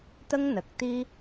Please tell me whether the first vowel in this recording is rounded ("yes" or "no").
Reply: no